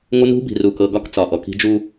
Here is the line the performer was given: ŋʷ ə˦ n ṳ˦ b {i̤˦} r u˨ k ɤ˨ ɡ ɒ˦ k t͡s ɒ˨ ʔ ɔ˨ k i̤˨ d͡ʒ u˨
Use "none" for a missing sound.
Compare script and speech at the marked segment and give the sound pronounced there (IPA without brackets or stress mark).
i̤˨